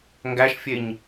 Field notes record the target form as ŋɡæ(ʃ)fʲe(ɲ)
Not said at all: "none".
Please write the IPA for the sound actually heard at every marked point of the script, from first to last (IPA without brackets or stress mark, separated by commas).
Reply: ʃ, ɲ